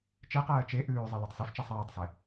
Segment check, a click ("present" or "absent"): absent